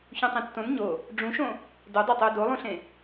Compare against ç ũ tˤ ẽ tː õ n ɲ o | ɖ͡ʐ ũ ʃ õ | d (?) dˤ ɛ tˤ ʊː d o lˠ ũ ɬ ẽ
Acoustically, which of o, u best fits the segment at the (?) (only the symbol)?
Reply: o